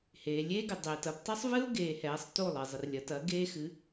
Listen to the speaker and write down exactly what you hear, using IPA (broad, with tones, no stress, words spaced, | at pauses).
heː˩lʲeː˥ɡɪ˩ dˤeː˩t ɐ˧ptˤɪ˥sˤvɨ˥ʊ̯ɡeː˩ hɛː˩˥sˤto˥˩lˠɪ˩ zˤɪ˩rlʲɐ˩˥tɐ˩˥ ɡeː˥xɨ˩˥